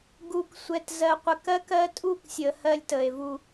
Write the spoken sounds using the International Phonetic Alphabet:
ɡ u˨ k sʷ ɛ˨ t z ɜ˨ qʷ ə˨ k ɜ˦ k ɜ˦ tʼ u˦ k sʲ ə˨ h ɜ˦ lʲ t ə˨ e̯ v u˦

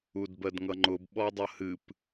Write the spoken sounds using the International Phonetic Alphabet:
u d b ɜ d ŋ ʌ ŋ͡ǃ ʊ b ɓ ɔ dˤ ʌ h ɨ p

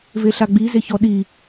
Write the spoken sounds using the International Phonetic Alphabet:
v e ɬ a ɡ͡b i z e ç ɔ ɗ i

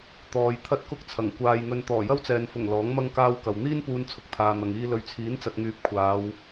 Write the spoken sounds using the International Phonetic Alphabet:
t̪ ɔː˨ j t̪ʰ ɐ˥ t̚ k ʊ˥ k̚ t͡sʰ ɐ˨˩ ŋ kʷ aː˧ j ŋ ɵ˧ n t̪ ɔː˨˩ j ɐ˥ w t͡s ɛː˨ n f ʊ˨˩ ŋ l ɔː˨˥ ŋ m ɐ˥ ŋ k aː˧ w k ɐ˨ w n̪ iː˥ n p uː˧ n t͡sʰ ʊ˧ k̚ t̪ʰ aː˨ n̪ ɐ˨ ŋ iː˧ l ɵ˨ ɥ t͡sʰ iː˨˥ n t͡s ɐ˨ t̚ ŋ yː˨˥ p̚ kʷʰ aː˨˧ w

